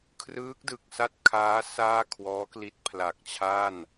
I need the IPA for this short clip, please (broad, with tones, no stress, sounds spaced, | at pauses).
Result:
kʰ r ɯː˦˥ k̚ d ɯ˨˩ k̚ s a˥˩ t̚ kʰ aː˦˥ s aː˥˩ kʰ w ɔː˦˥ k l i˦˥ t̚ pʰ l a˨˩ k̚ t͡ɕʰ a˥˩ n